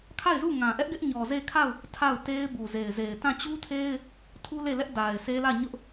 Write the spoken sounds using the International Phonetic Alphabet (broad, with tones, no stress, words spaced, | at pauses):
kʰa˦˨ɪ̯zu˦˨ ŋã˨ʔɛ˦ʔɡɪ˦ʔɲɔ˨ ze˦˨kʰa˦˨ʊ̯ | tʰa˦˨ʊ̯te˦ɪ̯ bu˨ze˨ɪ̯ze˨ɪ̯ tã˦˨t͡ɕu˦tʰe˦ɪ̯ | tʰu˦le˦˨lɛ˦ʔ da˨ɪ̯se˦lä˦˨ɲʊ˦ʔ